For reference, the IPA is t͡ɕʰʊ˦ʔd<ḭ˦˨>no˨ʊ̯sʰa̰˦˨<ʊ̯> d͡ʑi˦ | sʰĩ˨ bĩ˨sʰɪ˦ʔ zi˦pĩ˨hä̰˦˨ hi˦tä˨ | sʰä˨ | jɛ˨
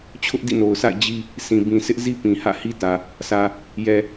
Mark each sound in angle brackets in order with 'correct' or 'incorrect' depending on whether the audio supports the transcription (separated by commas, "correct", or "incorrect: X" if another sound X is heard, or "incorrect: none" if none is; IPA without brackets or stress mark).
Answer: correct, incorrect: ɪ̯